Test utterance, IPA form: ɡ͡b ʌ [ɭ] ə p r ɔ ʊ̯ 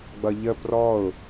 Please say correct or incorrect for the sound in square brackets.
incorrect: ʎ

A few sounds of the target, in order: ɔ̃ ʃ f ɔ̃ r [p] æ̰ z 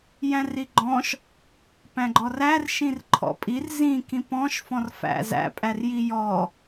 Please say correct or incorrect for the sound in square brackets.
incorrect: f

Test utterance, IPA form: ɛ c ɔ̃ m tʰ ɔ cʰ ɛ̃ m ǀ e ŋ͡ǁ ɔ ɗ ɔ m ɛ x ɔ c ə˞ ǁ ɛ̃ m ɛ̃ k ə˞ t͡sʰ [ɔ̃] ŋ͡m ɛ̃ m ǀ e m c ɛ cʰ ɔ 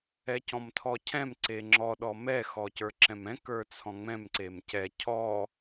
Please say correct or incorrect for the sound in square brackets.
correct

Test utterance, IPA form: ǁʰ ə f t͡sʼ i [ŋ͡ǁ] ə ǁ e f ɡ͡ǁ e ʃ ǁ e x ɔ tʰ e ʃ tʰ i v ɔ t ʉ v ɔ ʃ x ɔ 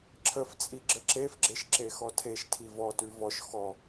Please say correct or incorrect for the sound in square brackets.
incorrect: ɡ͡ǁ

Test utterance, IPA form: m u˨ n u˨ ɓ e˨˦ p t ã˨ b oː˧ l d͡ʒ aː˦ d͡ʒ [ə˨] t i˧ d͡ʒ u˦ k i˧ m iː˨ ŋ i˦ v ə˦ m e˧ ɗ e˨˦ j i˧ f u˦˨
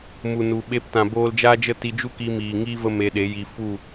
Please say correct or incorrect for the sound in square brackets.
incorrect: ə˦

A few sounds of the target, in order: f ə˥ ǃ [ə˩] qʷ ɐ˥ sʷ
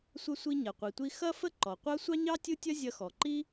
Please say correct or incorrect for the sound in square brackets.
incorrect: ɔ˩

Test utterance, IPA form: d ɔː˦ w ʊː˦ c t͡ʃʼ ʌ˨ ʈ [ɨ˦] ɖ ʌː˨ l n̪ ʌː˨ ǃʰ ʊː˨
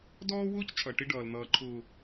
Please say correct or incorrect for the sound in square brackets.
incorrect: ɪ˦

